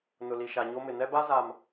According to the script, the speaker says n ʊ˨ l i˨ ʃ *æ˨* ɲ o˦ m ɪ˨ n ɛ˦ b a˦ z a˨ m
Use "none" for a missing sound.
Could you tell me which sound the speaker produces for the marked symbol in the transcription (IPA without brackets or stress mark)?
a˨